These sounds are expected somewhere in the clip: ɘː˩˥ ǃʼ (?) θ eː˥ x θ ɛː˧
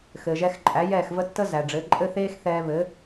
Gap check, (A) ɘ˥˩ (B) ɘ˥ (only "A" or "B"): B